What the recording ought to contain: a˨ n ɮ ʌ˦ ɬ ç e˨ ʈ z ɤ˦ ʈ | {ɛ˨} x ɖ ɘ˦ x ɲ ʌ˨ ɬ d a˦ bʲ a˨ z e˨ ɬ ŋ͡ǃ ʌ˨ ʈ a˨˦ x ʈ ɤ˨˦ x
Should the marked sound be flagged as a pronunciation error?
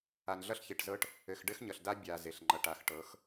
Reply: yes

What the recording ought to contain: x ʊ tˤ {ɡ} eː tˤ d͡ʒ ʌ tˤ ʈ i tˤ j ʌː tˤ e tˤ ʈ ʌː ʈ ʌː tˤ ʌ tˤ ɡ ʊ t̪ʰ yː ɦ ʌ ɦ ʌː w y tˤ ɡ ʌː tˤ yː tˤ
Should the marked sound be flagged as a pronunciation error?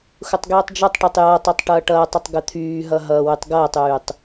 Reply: no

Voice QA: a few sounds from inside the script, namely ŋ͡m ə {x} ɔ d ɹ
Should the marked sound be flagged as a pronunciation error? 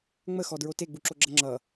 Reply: no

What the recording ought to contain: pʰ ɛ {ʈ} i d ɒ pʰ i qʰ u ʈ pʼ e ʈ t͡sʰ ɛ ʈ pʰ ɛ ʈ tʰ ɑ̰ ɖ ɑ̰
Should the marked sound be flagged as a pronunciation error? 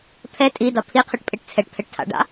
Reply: yes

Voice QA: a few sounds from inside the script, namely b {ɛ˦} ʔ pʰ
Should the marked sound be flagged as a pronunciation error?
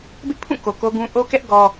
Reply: yes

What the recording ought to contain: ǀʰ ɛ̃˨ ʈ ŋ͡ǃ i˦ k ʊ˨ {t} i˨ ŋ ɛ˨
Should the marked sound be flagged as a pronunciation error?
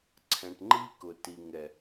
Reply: no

